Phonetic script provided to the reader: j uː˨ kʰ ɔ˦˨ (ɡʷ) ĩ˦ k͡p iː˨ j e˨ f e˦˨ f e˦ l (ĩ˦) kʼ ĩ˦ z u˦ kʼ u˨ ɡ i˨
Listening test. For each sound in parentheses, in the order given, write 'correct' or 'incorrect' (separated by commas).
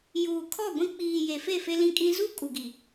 correct, correct